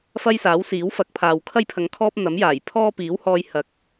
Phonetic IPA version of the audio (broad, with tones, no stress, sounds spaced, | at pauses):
f ɐ˥ j s aː˨˥ w s iː˨˥ w f ɐ˨˥ k̚ pʰ aː˨ w kʰ ɐ˥ j pʰ ɐ˨˧ ŋ kʰ ɔː˥ p̚ n̪ ɐ˨˥ m j aː˨˩ j pʰ ɔː˥ p iː˨˥ w h ɔː˧ j h ɐ˨˥ k̚